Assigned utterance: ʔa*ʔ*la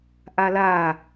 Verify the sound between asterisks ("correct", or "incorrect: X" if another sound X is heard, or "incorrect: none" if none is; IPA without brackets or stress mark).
incorrect: none